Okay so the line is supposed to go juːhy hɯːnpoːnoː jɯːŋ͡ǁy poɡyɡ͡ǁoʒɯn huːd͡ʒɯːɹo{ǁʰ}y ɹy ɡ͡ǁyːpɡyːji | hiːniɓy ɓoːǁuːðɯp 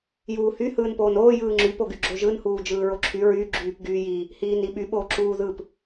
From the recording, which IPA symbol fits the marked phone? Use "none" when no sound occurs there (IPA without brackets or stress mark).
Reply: ǁʰ